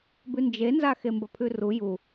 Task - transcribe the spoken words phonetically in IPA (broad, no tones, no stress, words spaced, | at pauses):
bʉnd͡ʒenza xembɐpʰʉru ju